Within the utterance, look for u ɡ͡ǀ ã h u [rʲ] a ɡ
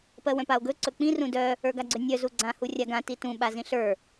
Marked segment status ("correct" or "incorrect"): correct